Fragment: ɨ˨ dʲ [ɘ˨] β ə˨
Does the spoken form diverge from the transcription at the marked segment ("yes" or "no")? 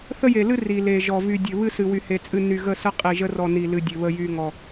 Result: no